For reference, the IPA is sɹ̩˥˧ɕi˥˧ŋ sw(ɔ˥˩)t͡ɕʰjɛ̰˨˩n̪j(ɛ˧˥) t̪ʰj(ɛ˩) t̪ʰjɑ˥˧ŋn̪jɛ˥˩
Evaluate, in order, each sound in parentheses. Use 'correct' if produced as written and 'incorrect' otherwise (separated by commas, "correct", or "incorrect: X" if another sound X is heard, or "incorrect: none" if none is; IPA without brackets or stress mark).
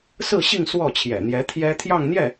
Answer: correct, correct, incorrect: ɛ˥